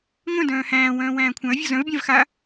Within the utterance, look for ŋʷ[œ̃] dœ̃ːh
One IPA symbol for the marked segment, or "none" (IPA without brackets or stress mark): œ̃